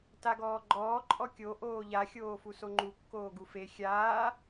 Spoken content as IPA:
taɡɔːɡ͡ǃɔː ǃʼɔkʲo ʔoːʎa xʲoːfusoŋ͡ǃu kːoːɡufe xʲaː

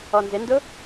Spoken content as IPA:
ɔnzɪndʊ

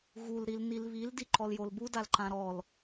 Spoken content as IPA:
ɣul ɾilnilβil diǃɔljolbu dalǃãɾɔl

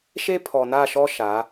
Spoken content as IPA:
ʃe˦pʰɔ˨na˦˨ʃɔ˦ ʃa˨˦

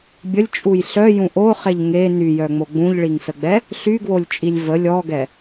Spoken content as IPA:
bʲəlʲt͡ʃʼuj ɬœjũ ʔoχeʎ ŋe nyjœŋ͡mo ɡ͡bũʎɭiŋsəɡ͡bɛ | ɬyɡwolʲt͡ʃʼilʲ və lʲɔɡɛ

